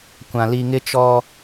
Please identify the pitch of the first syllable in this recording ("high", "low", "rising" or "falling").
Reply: low